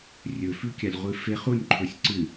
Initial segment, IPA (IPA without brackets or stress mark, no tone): rʲ